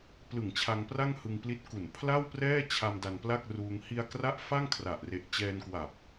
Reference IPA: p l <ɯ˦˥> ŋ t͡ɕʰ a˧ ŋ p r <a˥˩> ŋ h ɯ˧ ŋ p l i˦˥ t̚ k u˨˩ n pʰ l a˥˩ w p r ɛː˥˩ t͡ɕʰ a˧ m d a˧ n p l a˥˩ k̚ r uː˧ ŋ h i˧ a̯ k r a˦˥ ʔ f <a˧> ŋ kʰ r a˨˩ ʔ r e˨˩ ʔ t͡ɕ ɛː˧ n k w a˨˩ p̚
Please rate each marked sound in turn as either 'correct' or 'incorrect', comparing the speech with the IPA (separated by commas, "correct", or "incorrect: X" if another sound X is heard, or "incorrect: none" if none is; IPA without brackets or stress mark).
incorrect: ɯ˨˩, correct, incorrect: a˥˩